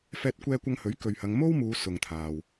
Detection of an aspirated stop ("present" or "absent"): present